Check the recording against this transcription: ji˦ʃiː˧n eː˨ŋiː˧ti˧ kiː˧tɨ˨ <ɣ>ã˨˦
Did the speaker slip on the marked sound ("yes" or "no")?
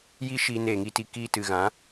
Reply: no